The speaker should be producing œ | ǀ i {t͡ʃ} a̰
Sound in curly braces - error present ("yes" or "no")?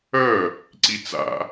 yes